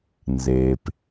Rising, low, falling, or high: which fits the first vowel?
low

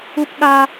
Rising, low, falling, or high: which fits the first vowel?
high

